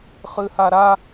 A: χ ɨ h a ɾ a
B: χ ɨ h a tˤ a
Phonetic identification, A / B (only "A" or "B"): A